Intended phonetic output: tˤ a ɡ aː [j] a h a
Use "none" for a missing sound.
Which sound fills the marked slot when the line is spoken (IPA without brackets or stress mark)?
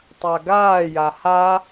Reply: j